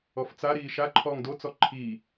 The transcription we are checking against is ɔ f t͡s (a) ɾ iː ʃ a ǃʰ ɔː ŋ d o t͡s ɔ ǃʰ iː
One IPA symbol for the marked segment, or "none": a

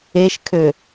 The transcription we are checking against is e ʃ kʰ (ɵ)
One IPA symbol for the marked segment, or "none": ø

